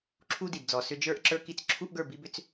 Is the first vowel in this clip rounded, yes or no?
yes